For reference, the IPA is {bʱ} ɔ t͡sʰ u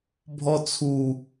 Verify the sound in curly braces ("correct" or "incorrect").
correct